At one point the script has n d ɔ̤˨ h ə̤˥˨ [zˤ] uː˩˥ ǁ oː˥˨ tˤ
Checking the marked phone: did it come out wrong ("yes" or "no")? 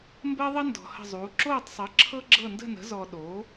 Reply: no